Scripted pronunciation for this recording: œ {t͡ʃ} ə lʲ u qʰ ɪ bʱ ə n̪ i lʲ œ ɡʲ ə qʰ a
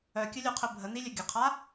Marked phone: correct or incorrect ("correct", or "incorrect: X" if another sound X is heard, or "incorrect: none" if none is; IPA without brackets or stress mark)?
incorrect: kʲ